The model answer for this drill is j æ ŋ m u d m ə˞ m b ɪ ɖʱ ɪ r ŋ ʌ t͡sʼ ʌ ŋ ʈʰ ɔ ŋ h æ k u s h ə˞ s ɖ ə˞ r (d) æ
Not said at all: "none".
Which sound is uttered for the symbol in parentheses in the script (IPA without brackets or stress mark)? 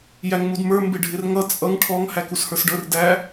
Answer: d